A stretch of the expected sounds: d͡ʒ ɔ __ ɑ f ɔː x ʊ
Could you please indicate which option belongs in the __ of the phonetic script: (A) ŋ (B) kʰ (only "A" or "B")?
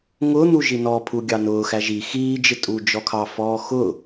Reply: B